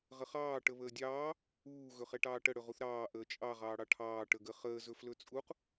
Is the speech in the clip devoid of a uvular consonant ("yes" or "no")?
no